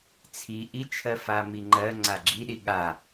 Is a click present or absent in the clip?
present